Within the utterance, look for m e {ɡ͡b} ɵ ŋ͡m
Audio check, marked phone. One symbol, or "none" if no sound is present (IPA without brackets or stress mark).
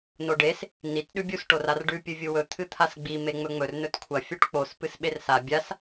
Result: ŋ͡m